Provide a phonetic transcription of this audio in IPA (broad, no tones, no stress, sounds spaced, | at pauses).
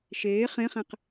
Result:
ʃ eː χ ẽ χ ɛ̃ q